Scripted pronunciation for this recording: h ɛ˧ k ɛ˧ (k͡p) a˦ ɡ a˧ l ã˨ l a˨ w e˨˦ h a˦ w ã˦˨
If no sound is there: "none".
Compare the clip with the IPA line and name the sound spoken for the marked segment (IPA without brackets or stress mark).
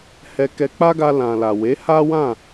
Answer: k͡p